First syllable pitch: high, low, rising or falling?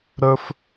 high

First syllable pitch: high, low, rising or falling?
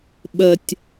low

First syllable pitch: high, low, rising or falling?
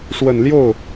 low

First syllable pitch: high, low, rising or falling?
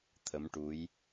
rising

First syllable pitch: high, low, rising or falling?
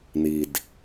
low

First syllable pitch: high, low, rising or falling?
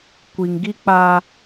low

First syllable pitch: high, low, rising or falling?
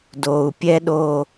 low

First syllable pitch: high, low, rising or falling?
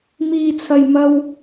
low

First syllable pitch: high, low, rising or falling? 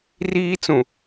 high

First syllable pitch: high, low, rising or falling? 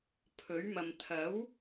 rising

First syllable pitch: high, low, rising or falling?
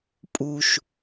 low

